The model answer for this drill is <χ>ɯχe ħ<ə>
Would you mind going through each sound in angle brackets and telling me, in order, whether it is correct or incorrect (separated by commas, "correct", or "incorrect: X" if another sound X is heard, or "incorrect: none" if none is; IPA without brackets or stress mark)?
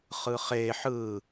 correct, incorrect: ɯ